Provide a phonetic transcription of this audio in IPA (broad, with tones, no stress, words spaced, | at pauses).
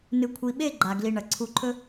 nɨ˨kʷʰi˨ɓe˦˨ ɡ͡ǃa˨ ɡli˨ ɳɐ˨ ǀʰu˨˦ǃʰɵ˦